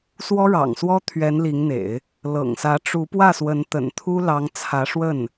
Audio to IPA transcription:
swɔ˥ɻɑ̰˨˩ŋswɔ˥ t̪ʰɥɛ˧˥nli˧˥ŋn̪ḛ˨˩˦ɪ̯ | lɤ̰˨˩ŋsä˧˥ʈ͡ʂu˧˥ pwä˥˩swə˧˥n t̪ə̰˨˩nt̪ʰu˥ lɑ˧˥ŋt͡sʰä˧˥ʂwə˥˩n

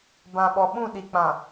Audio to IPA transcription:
bã˨ɓɔ˨ɓũ˦˨ ɗi˨k͡pã˨

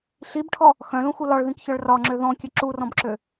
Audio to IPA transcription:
ɬibʈʰɔ | xœ̃lũxu lɒɭðĩkçœɭ rɒŋ͡ǁø ðɔ̃kʲɘ ǁurɔ̃bǁø

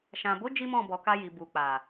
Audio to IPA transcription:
ʃã˨bo˨˦ d͡ʒi˦mɔ̃˦˨bɔ˨ka˧ ji˨bu˨ k͡pa˨

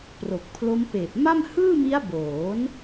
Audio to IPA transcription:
pro˨˩k̚pʰlo˦˥m peː˨˩p̚ma˥˩m hɯː˥˩mi˦˥a̯boː˩˦n

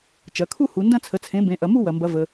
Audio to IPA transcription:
t͡ʃɐ˩˧kʰu˥˧ hu˩˧ndɐ̃˥˧t͡sʰə˩˥t͡sʰẽ˩˥ bẽ˩˥ʔɐ˩˧ mu˥˧wɐ˩mbɐ˩˧ və˩

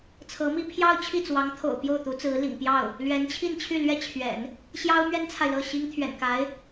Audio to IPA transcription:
t͡sʰɤ˧˥mi˥˧ pʰjɑ˥˧ʊ̯ t͡ɕʰi˥˩t͡swɑ˧˥ŋt̪ʰo̰˨˩ʊ̯ pjo˥˩ʊ̯t̪u˧˥t͡sɹ̩˧˥lḭ˨˩ŋ pjɑ˥˩ʊ̯ | lɥɛ˧˥nt͡ɕʰi˥˧nt͡ɕʰy˥˩ lɥɛ˥t͡ɕʰɥɛ̰˨˩˦n | ɕjɑ˥ʊ̯mɥɛ˥nt͡sʰa˨ɪ̯ lɤ˥˩ɕi˥ŋ t̪ʰɥɛ̰˨˩nka˧˥ɪ̯

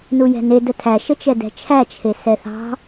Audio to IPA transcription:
nujɛ̤ne dətʰæ ʃət͡ʃɛdɛ̤t͡ʃʰæ t͡ʃʰesɛθɑ̤

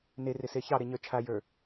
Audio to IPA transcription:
nerɪse çɑɾeɲə˞ t͡ʃʰajə˞

